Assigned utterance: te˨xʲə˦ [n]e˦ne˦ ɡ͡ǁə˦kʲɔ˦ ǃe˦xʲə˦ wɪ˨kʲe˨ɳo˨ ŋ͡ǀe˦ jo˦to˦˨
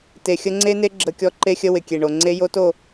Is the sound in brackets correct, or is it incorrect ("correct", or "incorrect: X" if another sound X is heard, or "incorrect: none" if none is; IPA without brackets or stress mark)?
incorrect: ŋ͡ǀ